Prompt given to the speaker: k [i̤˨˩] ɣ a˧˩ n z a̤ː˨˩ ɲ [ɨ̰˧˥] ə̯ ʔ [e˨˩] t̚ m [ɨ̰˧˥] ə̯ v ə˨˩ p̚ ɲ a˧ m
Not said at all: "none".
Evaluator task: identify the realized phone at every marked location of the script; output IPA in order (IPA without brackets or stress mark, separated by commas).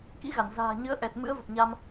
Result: ḭ˧˥, ɨ˨˦, ɛ˨˩, ɨ̰˧˥